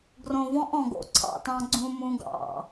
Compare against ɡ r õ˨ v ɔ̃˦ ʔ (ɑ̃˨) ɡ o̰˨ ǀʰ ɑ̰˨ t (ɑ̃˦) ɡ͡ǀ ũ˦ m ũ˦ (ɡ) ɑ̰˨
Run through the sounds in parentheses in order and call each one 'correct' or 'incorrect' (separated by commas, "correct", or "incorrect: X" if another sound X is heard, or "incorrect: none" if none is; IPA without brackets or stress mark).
incorrect: ɔ̃˨, correct, correct